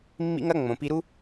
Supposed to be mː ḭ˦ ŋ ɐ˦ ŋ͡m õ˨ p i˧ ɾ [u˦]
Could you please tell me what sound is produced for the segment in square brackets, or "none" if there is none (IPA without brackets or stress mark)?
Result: u˦